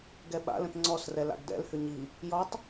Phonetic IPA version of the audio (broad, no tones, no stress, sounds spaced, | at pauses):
ɡ ɛ ɓ a̰ l ə̃ t ŋ͡ǀ ɔ s r ɛ l a̰ ɡ d ɛ̰ l h ʏ ɲ i | j ɔ tˤ